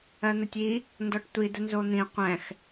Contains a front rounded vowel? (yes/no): no